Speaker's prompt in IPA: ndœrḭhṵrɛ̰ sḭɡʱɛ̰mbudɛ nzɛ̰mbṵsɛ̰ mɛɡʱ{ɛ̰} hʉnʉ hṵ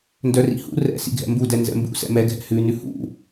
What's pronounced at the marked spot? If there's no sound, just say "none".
ɛ̰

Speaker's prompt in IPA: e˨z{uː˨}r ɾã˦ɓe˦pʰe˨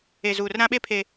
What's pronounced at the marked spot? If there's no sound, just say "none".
uː˨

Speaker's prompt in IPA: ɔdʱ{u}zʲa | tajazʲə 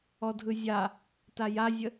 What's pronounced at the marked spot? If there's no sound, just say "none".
ɯ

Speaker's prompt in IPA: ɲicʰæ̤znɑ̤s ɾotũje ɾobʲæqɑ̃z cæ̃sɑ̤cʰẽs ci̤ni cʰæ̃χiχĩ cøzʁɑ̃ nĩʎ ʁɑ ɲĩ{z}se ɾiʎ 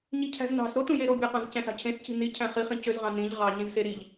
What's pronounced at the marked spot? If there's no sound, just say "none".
z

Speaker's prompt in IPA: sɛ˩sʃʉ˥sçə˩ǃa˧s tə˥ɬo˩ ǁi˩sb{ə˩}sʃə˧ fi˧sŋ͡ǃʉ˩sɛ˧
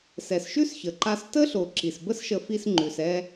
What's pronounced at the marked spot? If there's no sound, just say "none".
ə˥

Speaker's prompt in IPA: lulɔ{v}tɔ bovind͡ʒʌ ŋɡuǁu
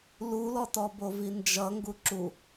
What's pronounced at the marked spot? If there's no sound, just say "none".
none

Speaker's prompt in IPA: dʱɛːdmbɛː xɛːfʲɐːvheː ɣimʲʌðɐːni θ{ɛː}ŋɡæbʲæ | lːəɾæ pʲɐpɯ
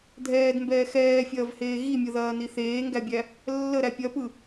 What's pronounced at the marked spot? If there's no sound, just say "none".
eː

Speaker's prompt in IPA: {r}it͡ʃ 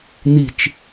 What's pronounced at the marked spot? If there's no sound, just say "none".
n̪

